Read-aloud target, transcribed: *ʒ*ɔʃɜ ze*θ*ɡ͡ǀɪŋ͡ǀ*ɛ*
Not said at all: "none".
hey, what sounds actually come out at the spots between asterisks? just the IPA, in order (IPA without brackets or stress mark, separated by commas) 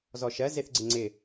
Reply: z, θ, ɪ